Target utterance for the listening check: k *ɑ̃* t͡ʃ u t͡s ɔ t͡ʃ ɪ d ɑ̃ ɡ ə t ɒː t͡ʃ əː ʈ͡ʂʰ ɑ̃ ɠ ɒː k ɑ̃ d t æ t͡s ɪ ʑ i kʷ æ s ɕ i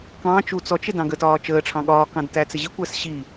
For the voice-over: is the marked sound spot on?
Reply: no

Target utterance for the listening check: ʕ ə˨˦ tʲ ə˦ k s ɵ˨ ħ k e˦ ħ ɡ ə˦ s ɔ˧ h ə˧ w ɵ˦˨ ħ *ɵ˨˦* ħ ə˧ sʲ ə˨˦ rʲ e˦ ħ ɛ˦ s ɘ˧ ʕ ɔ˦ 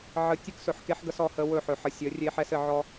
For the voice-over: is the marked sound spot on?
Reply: yes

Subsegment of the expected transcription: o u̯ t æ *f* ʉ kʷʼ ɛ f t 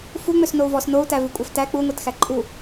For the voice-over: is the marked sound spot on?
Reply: no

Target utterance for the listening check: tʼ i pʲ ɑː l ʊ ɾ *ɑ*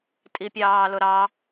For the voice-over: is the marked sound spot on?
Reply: yes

